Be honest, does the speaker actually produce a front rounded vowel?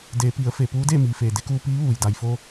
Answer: no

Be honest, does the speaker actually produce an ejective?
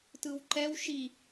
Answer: no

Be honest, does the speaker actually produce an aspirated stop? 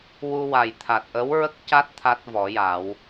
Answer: yes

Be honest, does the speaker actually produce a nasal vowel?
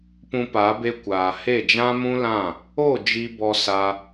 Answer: yes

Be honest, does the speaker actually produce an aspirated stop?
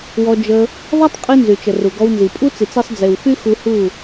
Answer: no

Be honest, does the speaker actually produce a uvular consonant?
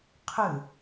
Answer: yes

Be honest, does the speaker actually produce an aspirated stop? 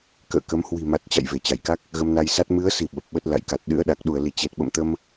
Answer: no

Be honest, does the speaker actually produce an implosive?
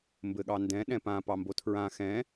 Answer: yes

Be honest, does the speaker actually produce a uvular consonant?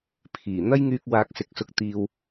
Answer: no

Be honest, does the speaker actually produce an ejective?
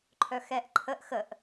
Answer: no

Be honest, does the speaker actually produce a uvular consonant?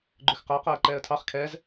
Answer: yes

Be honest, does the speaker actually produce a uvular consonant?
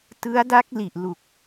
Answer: no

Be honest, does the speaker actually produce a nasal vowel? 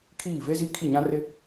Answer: yes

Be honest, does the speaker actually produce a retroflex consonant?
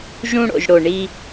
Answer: yes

